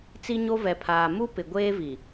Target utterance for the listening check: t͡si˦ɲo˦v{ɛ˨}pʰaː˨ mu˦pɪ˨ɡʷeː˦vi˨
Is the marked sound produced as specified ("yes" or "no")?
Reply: yes